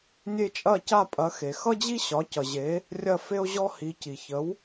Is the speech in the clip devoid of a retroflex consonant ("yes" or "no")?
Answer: yes